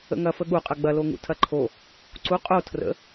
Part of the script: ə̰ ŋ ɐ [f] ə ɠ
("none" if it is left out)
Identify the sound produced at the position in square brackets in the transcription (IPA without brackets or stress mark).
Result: f